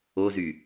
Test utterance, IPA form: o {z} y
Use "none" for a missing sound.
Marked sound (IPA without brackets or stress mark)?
z